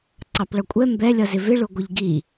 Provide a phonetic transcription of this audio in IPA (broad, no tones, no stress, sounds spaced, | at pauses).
ǀ ɑ p ɭ ʌ kʷʼ ɛ m b ɛ lʲ ʌ z ɪ v ɪ ɭ ʊ ɡʷ ɪ ʎ ɡ i